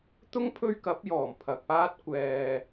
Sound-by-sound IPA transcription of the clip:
t̪ ʊ˥ ŋ pʰ ɵ˥ ɥ k ɐ˨˥ p̚ j ɔː˨˩ m pʰ ɐ˨ k̚ p aː˥ t̚ kʷ ɛː˨

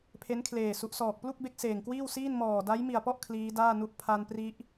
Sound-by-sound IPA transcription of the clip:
pʰ e˦˥ n kʰ l eː˨˩ s u˨˩ ʔ s ɔː˨˩ k̚ p l u˥˩ k̚ b e˦˥ k̚ s eː˨˩ ŋ k w iː˥˩ w s iː˥˩ n m ɔː˨˩ d a˦˥ j m i˨˩ a̯ p ɔ˥˩ ʔ kʰ l iː˦˥ d aː˥˩ n u˦˥ ʔ pʰ a˧ n p r i˦˥ ʔ

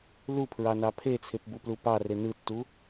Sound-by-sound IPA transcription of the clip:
l u pʰ ɹ ɑ n ɑ pʰ e t͡sʰ e p b u p l u p ɑ r e n ɯ tː u

